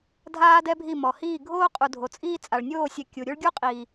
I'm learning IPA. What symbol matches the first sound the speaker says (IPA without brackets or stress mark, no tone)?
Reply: dʱ